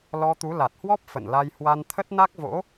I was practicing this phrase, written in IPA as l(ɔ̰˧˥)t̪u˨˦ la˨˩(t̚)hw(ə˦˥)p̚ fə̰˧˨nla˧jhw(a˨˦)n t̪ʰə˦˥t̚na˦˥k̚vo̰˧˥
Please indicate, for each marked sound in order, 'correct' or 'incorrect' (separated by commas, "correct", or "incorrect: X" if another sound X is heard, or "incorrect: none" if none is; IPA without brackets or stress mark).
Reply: incorrect: ɔ˧, correct, incorrect: ɔ˦˥, incorrect: a˧